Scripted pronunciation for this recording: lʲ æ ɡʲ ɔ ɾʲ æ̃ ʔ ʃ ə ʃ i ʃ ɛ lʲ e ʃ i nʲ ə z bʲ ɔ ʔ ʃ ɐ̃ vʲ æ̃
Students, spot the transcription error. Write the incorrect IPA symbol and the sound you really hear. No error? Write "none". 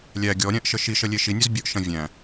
ɛ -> ə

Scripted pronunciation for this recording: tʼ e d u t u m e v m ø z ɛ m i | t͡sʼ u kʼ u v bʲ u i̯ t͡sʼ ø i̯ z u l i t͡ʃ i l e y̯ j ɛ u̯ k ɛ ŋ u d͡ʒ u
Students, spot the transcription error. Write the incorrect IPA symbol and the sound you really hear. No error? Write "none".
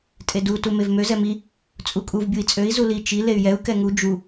none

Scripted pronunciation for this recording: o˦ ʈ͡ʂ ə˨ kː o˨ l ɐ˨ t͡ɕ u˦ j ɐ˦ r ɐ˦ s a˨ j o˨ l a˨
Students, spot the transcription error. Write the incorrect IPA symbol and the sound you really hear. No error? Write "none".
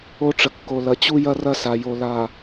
none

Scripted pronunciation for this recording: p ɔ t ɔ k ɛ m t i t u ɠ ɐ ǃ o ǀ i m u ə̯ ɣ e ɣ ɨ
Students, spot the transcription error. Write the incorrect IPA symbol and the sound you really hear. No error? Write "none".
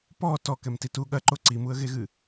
none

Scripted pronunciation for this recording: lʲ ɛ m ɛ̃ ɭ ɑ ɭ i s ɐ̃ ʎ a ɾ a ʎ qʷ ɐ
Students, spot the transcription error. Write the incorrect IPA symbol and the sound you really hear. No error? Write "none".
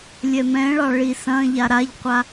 ɐ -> a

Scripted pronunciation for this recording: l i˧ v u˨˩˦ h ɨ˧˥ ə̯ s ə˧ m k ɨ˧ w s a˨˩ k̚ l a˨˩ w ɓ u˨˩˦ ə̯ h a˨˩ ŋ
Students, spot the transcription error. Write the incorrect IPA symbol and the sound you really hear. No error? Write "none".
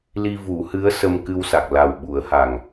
none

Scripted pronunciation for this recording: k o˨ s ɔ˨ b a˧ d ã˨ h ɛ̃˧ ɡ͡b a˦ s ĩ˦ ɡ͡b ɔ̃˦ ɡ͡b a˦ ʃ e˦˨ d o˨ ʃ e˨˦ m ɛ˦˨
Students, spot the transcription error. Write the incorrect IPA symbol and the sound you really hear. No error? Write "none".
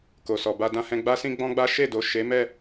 ã˨ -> ã˧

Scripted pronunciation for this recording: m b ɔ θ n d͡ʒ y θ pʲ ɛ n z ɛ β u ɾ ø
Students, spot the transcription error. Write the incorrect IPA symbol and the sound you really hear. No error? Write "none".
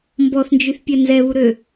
none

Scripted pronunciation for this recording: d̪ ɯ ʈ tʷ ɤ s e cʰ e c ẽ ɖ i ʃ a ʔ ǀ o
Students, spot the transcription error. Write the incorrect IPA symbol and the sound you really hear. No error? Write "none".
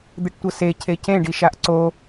none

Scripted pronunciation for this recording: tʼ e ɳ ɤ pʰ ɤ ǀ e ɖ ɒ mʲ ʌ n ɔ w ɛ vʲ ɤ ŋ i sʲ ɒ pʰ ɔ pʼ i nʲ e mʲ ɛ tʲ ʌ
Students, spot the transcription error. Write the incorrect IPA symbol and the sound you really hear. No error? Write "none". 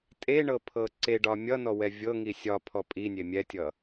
none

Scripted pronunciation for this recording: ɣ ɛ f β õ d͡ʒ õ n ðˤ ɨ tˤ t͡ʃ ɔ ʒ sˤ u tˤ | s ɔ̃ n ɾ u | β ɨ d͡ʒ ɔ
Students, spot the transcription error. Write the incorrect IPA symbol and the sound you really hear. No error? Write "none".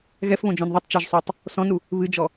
none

